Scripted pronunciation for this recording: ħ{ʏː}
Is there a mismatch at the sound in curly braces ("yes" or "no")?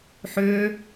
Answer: no